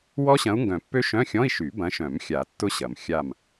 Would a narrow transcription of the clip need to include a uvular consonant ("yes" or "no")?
no